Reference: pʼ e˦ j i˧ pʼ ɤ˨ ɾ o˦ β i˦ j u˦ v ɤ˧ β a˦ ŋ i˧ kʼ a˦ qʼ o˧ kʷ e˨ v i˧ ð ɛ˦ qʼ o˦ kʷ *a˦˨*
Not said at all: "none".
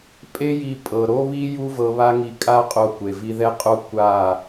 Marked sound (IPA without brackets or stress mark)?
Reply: a˦˨